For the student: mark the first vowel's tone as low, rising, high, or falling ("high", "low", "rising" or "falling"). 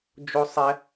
high